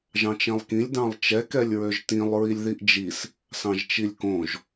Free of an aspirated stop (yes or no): yes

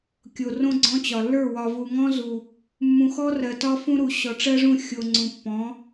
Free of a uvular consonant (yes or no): yes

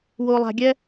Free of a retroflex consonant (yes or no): yes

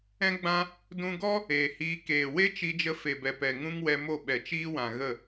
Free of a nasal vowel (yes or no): no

